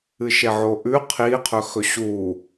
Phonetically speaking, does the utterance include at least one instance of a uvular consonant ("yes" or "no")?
yes